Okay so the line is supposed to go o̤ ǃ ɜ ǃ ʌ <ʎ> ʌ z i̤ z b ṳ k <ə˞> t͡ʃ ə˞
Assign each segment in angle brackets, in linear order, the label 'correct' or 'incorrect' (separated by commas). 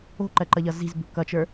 correct, incorrect